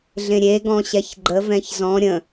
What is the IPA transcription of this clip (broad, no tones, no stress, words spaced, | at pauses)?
ɮẽɾʲeɡɔ̃ ɕɛçɡ͡ǃə vɛ̃çzɔ̃ ɾʲə̃